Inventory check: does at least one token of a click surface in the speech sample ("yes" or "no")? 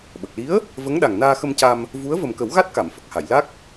no